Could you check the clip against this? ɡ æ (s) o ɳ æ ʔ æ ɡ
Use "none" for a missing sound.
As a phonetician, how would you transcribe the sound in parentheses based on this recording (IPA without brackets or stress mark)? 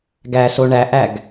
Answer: s